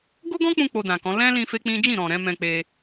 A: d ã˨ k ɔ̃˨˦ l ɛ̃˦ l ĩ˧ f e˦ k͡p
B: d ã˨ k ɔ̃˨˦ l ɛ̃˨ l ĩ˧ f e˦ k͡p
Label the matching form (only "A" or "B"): A